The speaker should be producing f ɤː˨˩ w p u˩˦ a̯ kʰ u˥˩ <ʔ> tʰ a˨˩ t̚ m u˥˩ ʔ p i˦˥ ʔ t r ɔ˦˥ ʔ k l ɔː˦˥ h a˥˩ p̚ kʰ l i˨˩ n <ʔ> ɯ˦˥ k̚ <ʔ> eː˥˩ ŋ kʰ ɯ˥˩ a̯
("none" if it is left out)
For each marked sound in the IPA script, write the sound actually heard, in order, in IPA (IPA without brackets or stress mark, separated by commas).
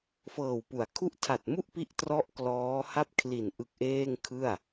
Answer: ʔ, ʔ, ʔ